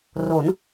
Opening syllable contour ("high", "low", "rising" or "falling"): rising